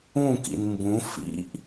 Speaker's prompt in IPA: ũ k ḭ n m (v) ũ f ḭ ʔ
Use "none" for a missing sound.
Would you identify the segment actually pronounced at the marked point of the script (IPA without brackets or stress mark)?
b